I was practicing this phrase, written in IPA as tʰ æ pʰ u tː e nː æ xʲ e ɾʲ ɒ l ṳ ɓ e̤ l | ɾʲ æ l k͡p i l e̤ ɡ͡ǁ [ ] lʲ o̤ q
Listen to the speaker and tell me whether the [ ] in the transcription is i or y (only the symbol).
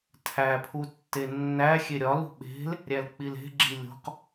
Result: i